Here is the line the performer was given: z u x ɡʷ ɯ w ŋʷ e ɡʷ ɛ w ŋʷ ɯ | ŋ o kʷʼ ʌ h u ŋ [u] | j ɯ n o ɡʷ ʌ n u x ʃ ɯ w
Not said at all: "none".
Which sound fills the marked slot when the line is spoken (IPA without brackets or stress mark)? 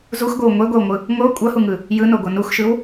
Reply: ɯ